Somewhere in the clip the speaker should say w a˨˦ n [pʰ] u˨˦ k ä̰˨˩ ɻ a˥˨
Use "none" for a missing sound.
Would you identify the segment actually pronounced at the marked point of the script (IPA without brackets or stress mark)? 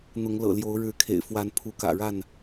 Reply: pʰ